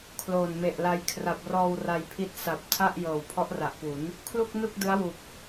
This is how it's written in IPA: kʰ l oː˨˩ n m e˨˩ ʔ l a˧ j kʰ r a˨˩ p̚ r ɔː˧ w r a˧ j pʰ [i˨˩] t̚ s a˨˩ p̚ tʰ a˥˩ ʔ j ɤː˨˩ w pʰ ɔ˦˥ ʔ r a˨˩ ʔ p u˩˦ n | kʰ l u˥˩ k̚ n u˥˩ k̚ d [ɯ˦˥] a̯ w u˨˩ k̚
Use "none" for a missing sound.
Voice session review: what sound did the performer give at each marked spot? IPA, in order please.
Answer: i˦˥, ɯ˦˥

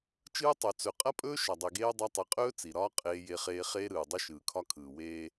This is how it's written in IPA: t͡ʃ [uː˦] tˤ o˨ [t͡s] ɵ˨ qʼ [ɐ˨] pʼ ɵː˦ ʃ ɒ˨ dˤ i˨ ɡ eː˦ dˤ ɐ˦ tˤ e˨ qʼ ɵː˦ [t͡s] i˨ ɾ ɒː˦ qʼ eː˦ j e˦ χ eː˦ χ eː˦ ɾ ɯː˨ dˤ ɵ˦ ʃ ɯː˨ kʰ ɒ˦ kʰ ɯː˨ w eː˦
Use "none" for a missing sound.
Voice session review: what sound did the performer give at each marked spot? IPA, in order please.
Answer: ɯː˦, t͡s, ɐ˦, t͡s

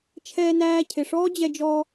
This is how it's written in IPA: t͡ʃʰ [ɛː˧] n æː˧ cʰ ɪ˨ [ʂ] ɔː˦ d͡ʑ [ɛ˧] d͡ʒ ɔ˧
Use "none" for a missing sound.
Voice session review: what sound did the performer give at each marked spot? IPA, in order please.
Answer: ɛː˧, ʂ, ɛ˧

